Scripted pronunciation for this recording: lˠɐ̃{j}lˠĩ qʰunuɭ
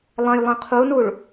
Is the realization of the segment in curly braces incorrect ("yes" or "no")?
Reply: no